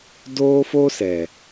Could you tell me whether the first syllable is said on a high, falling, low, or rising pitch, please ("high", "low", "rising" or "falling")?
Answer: high